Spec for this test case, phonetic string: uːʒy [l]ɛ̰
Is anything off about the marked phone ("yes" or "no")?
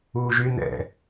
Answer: yes